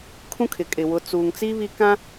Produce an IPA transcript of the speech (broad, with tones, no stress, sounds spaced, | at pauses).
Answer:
kʰ ũ˦ kʰ ɪ˨ kʼ ɪ˨ w ʊ˨˦ t͡s uː˨ ŋ t͡s i˦ β i˦ k ã˦